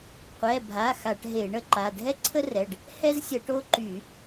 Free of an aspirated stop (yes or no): no